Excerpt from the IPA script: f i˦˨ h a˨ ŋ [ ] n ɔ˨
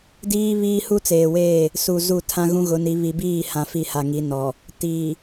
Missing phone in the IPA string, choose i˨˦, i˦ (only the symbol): i˨˦